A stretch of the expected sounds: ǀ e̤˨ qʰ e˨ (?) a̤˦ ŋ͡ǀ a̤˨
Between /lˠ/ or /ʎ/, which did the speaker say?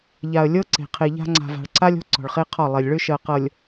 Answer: ʎ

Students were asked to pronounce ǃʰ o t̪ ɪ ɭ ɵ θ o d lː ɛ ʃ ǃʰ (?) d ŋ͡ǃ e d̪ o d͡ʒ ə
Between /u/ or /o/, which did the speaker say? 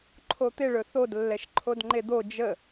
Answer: o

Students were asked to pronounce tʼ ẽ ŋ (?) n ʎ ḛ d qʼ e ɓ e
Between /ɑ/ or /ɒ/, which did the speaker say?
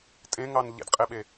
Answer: ɑ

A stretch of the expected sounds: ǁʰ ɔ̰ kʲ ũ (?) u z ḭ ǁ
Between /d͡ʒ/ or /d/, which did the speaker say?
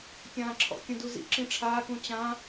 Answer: d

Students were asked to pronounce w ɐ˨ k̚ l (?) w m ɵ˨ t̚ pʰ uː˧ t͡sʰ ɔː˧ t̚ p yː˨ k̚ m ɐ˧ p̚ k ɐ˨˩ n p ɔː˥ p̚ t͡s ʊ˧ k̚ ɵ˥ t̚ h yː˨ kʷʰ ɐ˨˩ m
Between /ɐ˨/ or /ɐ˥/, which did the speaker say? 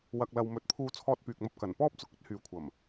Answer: ɐ˨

